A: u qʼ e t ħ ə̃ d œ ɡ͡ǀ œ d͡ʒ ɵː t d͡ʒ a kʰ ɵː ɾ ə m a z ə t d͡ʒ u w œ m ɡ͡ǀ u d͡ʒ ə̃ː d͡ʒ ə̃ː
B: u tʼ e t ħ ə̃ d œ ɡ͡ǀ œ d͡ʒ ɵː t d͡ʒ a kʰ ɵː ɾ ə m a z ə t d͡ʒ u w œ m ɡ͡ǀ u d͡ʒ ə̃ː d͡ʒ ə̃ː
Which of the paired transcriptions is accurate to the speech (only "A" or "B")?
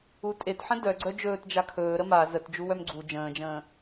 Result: B